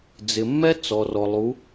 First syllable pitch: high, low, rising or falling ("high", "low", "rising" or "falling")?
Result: low